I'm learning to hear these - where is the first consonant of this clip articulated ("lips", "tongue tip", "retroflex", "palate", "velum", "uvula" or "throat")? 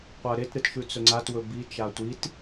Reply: uvula